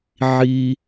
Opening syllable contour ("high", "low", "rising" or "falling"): high